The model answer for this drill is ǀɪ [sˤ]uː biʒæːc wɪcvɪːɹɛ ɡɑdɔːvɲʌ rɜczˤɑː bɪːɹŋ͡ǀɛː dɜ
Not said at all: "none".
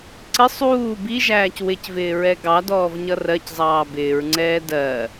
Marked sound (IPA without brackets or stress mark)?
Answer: sˤ